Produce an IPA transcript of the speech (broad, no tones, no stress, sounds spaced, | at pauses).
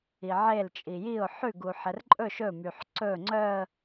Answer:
i ʕ e l t͡ʃʼ i j i ʊ̯ ħ ʉ ɡ u ħ ɛ r ǃʼ ɵ ʃ ɵ m y ħ ǀ ɵ ŋ͡ǀ œ ə̯